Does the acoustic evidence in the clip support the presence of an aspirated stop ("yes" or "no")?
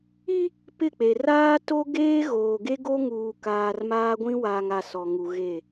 no